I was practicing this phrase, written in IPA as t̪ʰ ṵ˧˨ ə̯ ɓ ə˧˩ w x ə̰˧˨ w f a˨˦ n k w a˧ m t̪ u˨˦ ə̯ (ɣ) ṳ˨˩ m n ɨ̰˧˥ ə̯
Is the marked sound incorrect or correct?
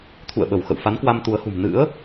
incorrect